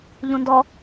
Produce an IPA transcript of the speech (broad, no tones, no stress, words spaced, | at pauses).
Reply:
ʎũndɔ